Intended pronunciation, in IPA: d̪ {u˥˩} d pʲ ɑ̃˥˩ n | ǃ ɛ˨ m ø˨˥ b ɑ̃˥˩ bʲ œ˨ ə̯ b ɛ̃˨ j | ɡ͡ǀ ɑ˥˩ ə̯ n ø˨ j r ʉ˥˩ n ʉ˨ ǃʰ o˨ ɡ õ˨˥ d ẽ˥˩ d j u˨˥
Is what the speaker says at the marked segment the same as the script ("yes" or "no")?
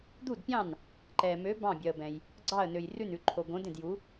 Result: yes